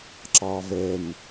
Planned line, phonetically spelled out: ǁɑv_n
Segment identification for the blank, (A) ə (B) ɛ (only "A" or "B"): B